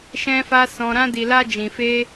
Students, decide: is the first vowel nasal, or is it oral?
nasal